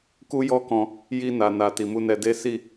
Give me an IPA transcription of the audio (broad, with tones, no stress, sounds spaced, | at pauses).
k u˦ j ɔ˦ k ɔ̃˧ | j i˧ n a˨ n a˨ t i˨ m u˧ n ɛ˧ d e˦ s i˦˨